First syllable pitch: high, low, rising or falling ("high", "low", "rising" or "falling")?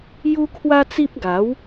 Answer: high